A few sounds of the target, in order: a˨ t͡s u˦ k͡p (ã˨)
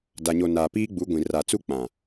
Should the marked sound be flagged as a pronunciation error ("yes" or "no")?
no